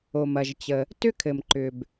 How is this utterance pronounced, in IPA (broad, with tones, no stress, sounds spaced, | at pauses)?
o˩ m ɐ˩ ʒ t͡ɕ ə˩ | t ʏ˥ kʰ ɘ˩ m ǃ ʏ˩ b